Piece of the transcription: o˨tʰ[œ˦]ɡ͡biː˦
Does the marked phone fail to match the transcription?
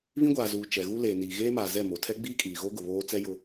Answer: yes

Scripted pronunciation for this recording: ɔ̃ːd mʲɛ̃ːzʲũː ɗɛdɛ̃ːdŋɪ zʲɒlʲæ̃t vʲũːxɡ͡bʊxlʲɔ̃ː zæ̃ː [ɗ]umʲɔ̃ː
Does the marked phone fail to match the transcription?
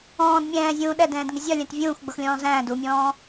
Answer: yes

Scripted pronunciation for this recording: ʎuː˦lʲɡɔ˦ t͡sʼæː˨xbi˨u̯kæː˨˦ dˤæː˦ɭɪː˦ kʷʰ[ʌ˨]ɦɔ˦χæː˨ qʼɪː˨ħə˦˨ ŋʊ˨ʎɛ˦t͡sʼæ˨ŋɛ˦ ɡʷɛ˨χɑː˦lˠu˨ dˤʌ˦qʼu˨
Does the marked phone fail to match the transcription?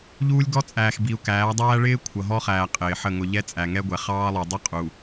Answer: no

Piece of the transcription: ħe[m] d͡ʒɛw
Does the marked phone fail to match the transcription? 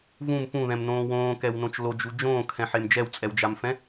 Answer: no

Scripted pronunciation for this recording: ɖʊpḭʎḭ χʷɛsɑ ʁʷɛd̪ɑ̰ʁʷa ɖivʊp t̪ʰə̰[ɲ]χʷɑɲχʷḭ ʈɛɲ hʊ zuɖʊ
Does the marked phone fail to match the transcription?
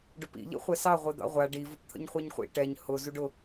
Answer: no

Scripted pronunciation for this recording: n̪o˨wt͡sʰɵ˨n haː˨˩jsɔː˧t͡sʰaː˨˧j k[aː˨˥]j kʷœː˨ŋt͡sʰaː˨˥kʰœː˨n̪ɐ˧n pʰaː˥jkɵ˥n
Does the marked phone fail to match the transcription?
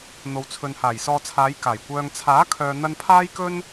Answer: yes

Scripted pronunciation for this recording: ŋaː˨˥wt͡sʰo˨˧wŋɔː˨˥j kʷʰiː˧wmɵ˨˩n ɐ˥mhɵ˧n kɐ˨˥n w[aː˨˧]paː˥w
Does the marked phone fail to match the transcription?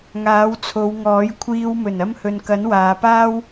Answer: no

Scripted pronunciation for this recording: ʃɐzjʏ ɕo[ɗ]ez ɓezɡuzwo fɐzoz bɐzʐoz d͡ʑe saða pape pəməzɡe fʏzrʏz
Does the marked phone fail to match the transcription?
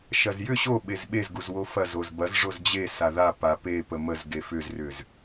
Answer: yes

